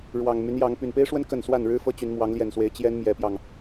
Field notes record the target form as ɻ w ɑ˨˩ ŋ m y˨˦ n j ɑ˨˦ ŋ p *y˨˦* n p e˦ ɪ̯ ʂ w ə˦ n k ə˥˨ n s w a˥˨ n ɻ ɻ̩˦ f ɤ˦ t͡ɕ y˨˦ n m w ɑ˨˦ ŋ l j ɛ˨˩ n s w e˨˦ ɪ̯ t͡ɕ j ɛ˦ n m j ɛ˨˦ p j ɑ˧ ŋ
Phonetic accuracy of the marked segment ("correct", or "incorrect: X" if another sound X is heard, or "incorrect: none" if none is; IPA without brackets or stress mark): incorrect: y˨˩